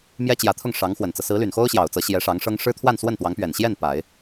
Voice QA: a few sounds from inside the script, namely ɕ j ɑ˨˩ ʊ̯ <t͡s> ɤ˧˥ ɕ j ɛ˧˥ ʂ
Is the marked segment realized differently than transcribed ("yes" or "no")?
no